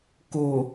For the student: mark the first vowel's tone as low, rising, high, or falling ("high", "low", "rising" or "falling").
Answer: low